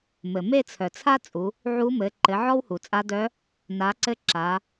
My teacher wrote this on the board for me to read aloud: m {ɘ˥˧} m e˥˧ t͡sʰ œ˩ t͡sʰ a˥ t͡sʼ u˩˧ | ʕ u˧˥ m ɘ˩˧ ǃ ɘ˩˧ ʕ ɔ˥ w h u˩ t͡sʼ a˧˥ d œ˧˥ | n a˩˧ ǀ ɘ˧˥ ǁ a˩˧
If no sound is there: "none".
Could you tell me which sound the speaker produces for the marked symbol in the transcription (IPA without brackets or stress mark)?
ɘ˩